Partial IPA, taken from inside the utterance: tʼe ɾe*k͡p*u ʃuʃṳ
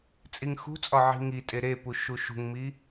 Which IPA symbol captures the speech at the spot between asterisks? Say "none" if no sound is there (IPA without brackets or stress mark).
p